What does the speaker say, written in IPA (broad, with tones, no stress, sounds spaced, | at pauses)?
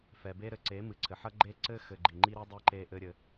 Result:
f ɛ˨ b e˦ ɾ ɘ˨ ǀ e˨˦ m ɨ˨ ǀʰ ɘ˨ ħ ɐ˦ ɡ͡ǃ e˦ ǀ ɘ˦ x ɘ˨ ɡ͡ǃ i˨ ŋ͡ǃ i˦ ɾ i˦ dˤ i˦ ǃ e˦ ʔ ɘ˦ ɾʲ ɘ˦